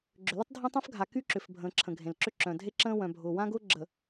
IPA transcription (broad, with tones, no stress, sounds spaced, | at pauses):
ɡ͡ǁ ʏ˨ l ə˦ tˤ dʱ ã˦ tˤ œ̃˦ f ɡʱ a˨ k y˦ ǁ ʏ˨ f bʱ ə̃ː˨ ǁʰ ə̃˨ ɡʱ ẽ˨ l ǁ ʏ˦ ǁ œ̃˨ dʱ e˦ ǁ ə̃ː˦ w œ̃˨ bʱ ʊː˨ w ã˦ ɡ ʊː˦ ɡ͡ǁ ə˨